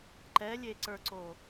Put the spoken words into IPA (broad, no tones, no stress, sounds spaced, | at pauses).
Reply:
ǃ ɛ lʲ e ǀ ə˞ ǀ o